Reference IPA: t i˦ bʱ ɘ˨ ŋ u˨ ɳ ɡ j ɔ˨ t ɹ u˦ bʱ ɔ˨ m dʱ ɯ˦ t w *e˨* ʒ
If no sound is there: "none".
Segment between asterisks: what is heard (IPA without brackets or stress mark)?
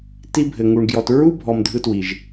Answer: i˨